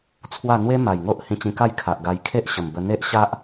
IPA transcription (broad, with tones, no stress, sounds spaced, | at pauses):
t͡sʰ w a˥˧ n̪ w e˦ m a˨˩ j ŋ o˦ ʔ h ĩ˧ t͡ɕ ĩ˧ k a˥˧ j kʰ a˨ ʔ ɡ a˧ j kʰ e˦ ʔ ɕ ə˨˩ m b ə˧ n̪ e˦ ʔ ɕ a˦ ʔ